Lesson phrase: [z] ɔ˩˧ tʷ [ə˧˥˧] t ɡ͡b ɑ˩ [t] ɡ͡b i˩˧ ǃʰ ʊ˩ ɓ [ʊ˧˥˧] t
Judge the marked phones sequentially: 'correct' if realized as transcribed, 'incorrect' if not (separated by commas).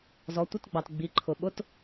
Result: correct, correct, correct, correct